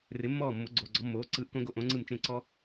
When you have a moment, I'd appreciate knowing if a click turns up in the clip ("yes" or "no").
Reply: yes